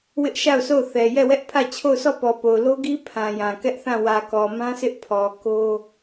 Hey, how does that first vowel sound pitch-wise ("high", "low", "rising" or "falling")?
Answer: high